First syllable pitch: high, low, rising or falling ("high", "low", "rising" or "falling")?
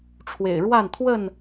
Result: low